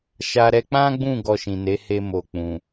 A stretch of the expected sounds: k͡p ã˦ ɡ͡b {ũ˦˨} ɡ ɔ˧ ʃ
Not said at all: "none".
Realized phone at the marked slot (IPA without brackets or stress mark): ũ˦˨